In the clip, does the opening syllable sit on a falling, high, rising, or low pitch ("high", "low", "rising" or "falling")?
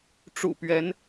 low